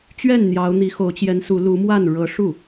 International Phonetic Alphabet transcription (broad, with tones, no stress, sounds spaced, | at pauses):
t͡ɕ ɥ ɛ˥˩ n n̪ j ɑ˧˥ ʊ̯ n̪ i˧˥ x o˧˥ ʊ̯ t͡ɕ j ɛ˧˥ n s u˧˥ l u˧˥ m w a˥˩ n ɻ ɤ˧˥ ʂ u˥˩